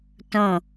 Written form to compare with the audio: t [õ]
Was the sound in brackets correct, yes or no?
yes